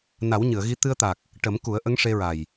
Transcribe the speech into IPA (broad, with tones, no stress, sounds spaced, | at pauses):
n a˨˩˦ w ɲ ɨ˨˩˨ ə̯ ɣ i˧˥ t̪ ɨ˧ ə̯ t̪ a˨˩ k̚ | ʈ ə˨˩˦ m k u˨˩˦ ə̯ ʔ ə˧˥ ŋ ʂ e˧ ɹ a˨˩ j